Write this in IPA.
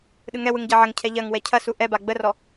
ɗɯŋɛwɯŋ ɟɐʕɐŋcʰɛ ʎɐŋ wɛcʰɐsu ʔɛba ɡ͡bərɔ

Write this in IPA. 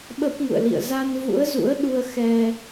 ɓə˦˥p̚ŋṵ˧˨ə̯lḭ˧˨ə̯ za˧n vṵ˧˥ə̯zṵ˧˥ə̯ɗu˧ə̯ xɛ˧

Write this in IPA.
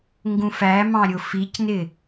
ŋɡũfæmɑ̃ ɾʲʊficnɪ

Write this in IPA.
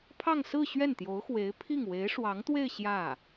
pʰɑ˥˧ŋsɹ̩˥˧ ɕɥɛ˥˩nt̪jo˧˥ʊ̯xwe˧˥ɪ̯pʰi˥˩ŋ we˧˥ɪ̯ʂwɑ˧˥ŋt̪we˥˧ɪ̯ ɕjä˥˩

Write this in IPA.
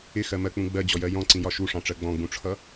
ɪxɜmɜk͡pũ ɡ͡bɜd͡ʑɔjɜ jɔ̃ǀĩjɒ ʃuʂɑ̃ʈ͡ʂɜ ɡ͡bɔ̃ɡ͡bũʈ͡ʂʰʌ

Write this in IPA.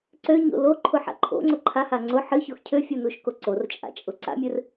ǀøɲo̰ loǃʰʊħa̰ ǃʰo̰ŋ͡ǀʊ ǃʰaha ŋ͡ǀʊ ħɨçox cʰøfʲunuʃko ǀort͡ʃʼa̰t͡ʃʼʊ ǀa̰mʲɨr

